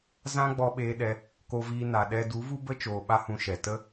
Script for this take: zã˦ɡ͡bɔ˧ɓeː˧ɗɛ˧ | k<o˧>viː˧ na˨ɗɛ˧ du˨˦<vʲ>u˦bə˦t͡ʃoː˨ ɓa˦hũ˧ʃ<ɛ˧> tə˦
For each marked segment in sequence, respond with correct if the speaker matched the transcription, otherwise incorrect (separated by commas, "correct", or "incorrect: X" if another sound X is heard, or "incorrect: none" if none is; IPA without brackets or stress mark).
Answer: correct, incorrect: v, incorrect: ɛ˨